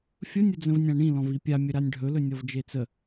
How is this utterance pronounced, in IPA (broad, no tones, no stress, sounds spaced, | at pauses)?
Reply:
fʲ ʊ nʲ ʊ d͡z ə̃ v nʲ ã ɳ ĩ l ɔ̃ v i pʲ a mʲ ɵ ɾ a nʲ ɖʱ ɵ l ɵ nʲ ɔ v d͡ʒ e t͡s ə